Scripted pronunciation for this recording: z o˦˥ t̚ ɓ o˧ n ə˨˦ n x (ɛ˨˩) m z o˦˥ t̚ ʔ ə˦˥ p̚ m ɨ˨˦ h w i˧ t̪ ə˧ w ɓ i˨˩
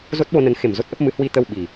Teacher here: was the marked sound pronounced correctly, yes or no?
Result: no